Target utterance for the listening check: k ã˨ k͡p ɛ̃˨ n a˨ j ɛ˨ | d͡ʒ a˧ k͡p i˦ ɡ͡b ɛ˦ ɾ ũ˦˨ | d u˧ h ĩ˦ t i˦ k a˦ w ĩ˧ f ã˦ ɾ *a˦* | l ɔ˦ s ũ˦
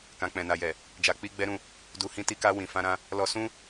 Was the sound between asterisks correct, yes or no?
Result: no